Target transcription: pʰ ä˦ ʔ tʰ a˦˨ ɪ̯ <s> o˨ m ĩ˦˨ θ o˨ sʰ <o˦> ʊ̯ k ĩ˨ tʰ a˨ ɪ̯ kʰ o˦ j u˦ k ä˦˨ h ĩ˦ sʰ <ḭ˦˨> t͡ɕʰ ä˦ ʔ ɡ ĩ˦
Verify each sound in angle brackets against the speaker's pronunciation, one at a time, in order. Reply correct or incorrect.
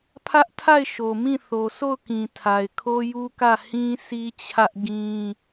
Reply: incorrect: ʃ, incorrect: o˦˨, incorrect: i˦

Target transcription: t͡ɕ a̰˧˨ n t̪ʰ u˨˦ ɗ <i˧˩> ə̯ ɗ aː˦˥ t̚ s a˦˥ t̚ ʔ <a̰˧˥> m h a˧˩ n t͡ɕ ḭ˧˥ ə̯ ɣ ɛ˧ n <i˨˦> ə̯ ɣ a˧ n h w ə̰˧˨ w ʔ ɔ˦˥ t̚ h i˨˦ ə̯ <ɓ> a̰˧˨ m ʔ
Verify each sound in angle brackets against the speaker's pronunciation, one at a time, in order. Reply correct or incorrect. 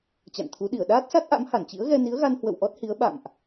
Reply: correct, correct, correct, correct

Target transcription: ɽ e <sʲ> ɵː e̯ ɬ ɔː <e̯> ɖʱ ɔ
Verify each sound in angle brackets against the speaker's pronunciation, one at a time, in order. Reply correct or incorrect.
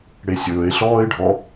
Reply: correct, correct

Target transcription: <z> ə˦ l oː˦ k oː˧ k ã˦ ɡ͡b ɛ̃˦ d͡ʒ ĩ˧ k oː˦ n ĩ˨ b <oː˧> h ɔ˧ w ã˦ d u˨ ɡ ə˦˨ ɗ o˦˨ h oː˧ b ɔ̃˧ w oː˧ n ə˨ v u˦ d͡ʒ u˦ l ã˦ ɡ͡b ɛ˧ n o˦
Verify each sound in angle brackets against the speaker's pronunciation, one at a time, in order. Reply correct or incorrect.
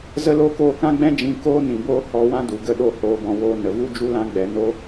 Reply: correct, incorrect: oː˦

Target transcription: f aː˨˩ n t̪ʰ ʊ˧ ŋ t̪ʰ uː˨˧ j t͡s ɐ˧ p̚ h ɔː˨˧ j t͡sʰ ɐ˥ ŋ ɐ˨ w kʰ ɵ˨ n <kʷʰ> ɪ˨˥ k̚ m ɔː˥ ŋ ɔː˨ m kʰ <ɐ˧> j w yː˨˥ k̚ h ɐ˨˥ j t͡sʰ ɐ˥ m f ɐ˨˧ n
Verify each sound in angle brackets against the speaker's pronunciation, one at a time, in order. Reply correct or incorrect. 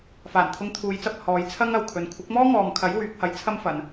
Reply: correct, incorrect: ɐ˨˥

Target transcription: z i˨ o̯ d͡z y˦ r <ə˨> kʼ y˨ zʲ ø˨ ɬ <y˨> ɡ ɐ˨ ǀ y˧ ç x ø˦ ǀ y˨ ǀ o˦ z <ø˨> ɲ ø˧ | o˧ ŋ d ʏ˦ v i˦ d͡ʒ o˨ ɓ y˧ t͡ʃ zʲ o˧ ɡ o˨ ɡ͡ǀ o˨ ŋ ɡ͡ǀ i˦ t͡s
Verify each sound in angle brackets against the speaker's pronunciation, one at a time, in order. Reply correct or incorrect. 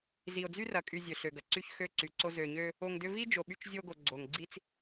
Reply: incorrect: ɐ˨, incorrect: ø˨, correct

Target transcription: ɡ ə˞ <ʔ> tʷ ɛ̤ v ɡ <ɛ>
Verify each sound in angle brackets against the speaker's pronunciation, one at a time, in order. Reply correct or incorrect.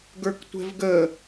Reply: incorrect: k, incorrect: ə

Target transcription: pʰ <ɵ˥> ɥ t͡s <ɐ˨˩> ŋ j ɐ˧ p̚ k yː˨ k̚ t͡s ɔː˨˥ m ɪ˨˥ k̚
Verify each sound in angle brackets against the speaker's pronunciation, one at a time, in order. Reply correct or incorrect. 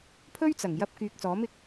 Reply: correct, correct

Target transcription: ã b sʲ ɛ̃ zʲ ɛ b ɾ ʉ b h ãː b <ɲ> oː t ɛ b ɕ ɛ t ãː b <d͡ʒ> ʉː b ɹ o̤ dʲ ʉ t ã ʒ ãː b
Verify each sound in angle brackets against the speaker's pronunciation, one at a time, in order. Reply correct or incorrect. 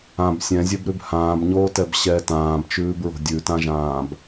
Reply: correct, incorrect: t͡ʃ

